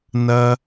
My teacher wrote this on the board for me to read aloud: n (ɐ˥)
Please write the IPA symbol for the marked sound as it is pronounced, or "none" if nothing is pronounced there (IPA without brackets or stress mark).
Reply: ɐ˥